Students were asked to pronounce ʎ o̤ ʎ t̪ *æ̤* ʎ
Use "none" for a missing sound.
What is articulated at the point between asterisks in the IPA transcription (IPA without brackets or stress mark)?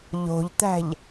æ̤